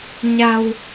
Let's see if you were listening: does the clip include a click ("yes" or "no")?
no